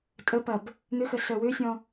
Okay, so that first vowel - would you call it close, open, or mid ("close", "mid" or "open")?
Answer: mid